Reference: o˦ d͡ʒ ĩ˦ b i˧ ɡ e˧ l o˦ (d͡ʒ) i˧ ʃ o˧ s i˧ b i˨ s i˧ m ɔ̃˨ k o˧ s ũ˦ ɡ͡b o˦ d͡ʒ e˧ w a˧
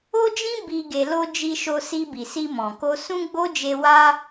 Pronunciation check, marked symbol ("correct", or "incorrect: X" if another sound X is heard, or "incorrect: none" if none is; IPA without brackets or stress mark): correct